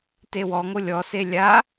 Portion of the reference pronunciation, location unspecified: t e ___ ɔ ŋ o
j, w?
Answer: w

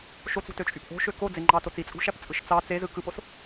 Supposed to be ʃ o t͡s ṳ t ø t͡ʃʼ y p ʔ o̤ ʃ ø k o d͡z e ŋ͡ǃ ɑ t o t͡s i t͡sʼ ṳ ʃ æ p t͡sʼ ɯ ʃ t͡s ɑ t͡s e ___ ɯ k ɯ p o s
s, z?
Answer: z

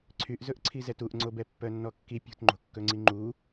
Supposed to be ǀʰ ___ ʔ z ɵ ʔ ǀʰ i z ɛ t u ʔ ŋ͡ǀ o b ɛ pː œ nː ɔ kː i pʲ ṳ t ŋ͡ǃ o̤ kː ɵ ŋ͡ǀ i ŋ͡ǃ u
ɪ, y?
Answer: y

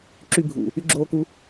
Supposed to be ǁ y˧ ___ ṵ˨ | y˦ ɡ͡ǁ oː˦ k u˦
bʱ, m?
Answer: bʱ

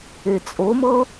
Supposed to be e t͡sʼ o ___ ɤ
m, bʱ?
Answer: m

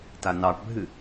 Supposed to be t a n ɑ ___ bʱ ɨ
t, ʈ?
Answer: ʈ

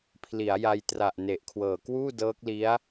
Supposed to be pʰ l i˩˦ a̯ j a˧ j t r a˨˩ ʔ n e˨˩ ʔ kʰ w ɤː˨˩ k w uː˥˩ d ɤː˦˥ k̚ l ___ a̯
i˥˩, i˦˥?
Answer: i˦˥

